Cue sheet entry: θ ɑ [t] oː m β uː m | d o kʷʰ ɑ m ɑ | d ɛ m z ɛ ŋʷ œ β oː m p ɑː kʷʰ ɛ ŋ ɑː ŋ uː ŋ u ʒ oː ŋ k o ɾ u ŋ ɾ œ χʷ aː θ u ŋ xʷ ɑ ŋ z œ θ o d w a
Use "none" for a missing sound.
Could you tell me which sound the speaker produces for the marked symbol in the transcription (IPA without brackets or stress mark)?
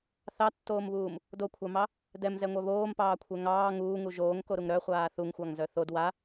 tː